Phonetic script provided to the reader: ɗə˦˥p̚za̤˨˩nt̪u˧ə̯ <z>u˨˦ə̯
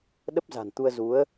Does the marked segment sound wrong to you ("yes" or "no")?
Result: no